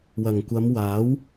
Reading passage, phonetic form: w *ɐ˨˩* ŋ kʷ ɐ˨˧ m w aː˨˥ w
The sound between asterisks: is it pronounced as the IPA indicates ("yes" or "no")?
yes